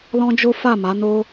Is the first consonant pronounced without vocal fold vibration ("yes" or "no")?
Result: no